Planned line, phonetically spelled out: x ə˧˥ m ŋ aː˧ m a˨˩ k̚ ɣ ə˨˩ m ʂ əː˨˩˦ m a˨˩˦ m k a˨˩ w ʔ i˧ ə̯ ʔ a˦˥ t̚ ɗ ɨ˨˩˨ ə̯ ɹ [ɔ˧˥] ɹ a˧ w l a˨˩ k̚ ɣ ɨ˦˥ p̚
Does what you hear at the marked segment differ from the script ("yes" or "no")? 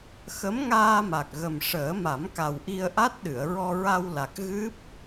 yes